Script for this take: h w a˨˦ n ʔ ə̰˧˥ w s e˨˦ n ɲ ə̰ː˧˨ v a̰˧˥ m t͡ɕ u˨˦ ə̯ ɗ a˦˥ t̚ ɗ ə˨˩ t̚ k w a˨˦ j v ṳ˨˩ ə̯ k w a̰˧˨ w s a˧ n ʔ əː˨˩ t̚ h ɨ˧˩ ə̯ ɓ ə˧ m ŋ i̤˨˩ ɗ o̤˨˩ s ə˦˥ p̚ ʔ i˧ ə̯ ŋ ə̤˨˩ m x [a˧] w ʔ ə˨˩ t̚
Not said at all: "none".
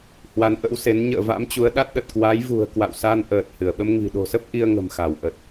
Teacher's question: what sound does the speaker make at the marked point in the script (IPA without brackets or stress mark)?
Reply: a˧˩